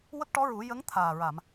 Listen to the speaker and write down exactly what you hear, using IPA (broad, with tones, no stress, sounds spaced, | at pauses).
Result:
w ə˦˥ k̚ ʈ ɔ˧˥ ɹ u˨˩˦ j ə˧˥ ŋ t̪ʰ aː˨˩ ɹ a˨˩˨ m